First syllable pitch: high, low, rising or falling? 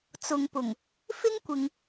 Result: low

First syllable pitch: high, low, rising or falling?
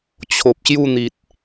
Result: low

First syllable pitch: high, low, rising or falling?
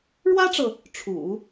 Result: high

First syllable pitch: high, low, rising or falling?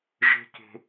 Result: high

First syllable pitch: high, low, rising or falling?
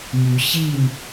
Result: rising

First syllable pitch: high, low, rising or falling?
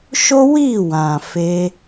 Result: high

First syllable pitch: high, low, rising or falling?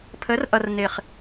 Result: rising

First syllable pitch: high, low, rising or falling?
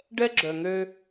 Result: high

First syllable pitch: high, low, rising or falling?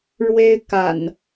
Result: high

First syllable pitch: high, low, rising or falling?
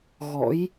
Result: rising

